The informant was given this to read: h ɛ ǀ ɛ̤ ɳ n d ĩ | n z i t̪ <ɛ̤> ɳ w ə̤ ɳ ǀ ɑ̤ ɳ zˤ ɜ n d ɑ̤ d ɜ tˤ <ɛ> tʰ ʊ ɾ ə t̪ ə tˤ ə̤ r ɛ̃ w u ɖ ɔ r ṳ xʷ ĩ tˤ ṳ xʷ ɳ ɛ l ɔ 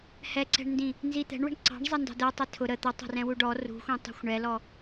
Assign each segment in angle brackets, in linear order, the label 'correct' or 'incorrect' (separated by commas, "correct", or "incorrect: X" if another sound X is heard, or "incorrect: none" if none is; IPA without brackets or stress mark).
correct, correct